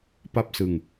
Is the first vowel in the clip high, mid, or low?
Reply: low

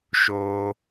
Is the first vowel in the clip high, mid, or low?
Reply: mid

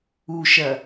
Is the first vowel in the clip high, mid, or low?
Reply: high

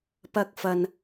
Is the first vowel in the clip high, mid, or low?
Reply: low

